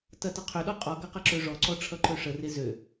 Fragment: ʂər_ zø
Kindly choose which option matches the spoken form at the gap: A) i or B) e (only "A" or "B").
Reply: B